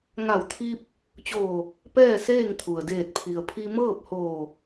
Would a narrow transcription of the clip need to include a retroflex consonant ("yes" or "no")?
no